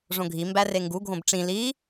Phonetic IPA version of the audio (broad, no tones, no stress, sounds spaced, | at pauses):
ʐ õ ɡʱ i m b æ r e ŋ ɡ u ɡʱ õ b ʈ͡ʂ ĩ l i